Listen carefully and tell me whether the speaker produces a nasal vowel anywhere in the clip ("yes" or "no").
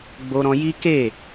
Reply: yes